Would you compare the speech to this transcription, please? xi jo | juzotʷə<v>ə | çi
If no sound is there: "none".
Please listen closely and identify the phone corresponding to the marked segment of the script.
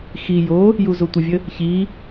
vʲ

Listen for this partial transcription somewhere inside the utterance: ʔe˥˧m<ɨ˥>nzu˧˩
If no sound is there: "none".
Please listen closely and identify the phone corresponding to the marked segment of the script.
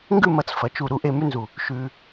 ʉ˥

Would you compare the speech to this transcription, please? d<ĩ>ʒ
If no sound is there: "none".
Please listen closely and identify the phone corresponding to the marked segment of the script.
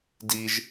i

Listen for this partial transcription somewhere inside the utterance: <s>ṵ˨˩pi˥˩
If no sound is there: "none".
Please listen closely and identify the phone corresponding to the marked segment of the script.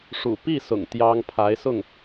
ʂ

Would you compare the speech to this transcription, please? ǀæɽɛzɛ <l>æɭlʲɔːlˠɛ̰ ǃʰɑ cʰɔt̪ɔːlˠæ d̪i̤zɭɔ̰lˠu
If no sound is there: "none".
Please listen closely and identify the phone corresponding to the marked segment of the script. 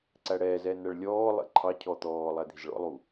n̪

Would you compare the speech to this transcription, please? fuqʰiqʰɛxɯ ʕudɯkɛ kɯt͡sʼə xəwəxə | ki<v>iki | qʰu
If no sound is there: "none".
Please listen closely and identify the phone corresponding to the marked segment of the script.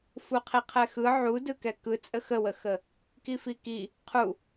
f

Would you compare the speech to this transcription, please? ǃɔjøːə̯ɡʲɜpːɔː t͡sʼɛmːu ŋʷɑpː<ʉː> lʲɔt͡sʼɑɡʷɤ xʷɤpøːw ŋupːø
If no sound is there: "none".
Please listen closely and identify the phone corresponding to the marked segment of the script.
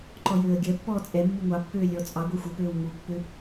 øː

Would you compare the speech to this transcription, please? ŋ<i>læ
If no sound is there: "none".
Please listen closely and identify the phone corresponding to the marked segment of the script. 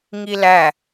i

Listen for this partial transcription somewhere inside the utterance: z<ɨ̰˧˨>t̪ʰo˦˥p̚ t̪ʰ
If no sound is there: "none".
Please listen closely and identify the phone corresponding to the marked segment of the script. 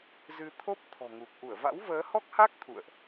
ɨ˧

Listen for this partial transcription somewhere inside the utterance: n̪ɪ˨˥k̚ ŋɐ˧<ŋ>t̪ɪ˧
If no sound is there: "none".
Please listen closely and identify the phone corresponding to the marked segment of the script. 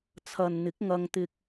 ŋ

